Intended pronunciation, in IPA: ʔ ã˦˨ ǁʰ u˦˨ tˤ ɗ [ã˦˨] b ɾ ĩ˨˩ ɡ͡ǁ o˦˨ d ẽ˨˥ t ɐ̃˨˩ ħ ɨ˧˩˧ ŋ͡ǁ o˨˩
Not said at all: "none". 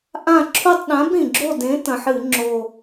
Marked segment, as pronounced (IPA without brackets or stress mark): ã˨˥